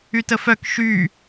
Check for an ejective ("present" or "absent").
absent